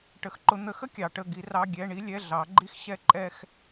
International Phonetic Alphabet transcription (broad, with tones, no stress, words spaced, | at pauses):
ʈə˨˥xǃʊ˨˥ n̪ə˨˥xə˥ kʲɑ˨˥ʈə˧˥˧ ɡi˨˥rɑ˧˥˧ ɡʲɛ˧˥˧ ɳi˥lʲɛ˧˥˧ɮɑ˨˥ɡ͡ǃi˥x ɕɛ˥ǃʼɛ˥x